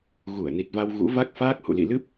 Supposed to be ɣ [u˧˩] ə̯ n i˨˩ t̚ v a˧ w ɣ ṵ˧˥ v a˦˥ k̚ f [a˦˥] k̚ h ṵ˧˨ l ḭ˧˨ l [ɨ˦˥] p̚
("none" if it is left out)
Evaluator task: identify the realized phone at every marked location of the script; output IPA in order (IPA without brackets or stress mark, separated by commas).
u˧˩, aː˦˥, ɨ˦˥